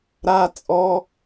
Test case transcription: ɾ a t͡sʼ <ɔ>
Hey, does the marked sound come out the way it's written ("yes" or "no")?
yes